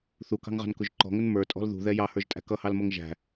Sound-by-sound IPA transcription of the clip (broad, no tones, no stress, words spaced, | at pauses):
θukɑ̤ŋʁɑ̤nkʊʒ ǃɔ̤ŋən mə˞tʼɔ̤l ðṳðɛ jɑhə˞ʒtʼæ̤ kʌhɑlmʌŋ ʒæ̤